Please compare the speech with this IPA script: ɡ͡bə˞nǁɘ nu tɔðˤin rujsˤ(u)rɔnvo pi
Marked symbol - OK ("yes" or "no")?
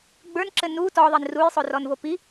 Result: no